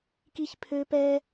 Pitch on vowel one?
high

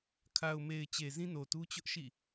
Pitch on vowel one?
low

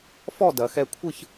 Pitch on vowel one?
falling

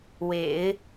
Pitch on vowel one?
low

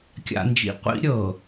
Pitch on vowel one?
low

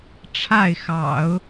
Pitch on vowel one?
falling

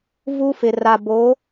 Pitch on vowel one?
high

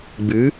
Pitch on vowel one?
rising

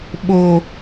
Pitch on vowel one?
low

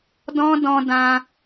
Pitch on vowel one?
high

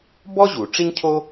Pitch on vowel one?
high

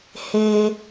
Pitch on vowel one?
low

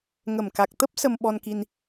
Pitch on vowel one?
low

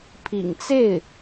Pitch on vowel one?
low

